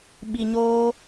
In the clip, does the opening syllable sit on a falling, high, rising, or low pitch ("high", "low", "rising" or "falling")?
low